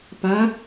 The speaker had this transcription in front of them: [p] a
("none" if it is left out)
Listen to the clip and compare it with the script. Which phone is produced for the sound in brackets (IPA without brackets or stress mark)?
p